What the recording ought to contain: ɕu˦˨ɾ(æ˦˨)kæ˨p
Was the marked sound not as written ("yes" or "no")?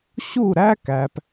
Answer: yes